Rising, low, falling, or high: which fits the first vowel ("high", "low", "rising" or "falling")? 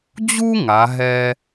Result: high